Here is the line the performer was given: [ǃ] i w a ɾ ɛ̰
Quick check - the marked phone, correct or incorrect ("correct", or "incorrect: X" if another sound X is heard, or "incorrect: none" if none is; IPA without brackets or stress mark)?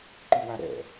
correct